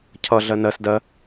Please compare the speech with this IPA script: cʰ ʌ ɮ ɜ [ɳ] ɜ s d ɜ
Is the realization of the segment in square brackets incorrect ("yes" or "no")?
yes